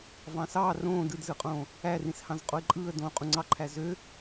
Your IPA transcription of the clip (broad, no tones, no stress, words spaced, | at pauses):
vɑ̃sɑː rõː dɯdzɯqʼõː | ærĩshɑ̃z qʼoɪ̯ǃʼɯːə̯ dõːqʼũŋ͡ǀɑǃʰæ zø